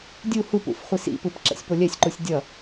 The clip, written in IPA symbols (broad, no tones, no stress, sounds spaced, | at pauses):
dʲ u h u p ṵ f χʷ i s ḭ p ɯ p ǁ ɛ̰ sʲ p o lʲ ɛ sʲ ǃ u sʲ dʲ ʌ